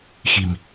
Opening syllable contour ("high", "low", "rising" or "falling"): low